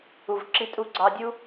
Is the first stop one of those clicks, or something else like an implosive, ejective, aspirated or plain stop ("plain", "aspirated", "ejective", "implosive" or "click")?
click